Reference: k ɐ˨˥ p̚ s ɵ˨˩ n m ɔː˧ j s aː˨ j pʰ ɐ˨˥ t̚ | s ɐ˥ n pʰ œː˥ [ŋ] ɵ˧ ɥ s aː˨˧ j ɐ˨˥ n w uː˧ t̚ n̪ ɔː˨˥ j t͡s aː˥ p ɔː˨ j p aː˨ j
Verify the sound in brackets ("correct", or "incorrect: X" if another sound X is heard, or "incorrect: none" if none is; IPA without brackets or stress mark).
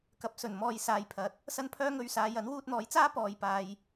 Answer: correct